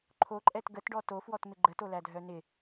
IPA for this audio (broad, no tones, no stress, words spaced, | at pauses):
ǃʰoǃʼɛt ɡətɖɔ tofwɔtmɪ ɡ͡ǃətolædʱœ nɪ